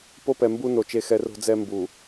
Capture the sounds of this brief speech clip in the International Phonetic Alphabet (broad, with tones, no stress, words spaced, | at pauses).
po˦pɛ˨ mbu˦no˨ t͡ʃe˨xɛ˨ ro̤˦d͡zɛ˦ mbu˨